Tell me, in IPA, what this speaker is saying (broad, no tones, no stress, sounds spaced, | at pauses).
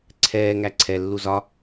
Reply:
ǀʰ ɛː ŋ æ ǀʰ ɛ lː u z ɒ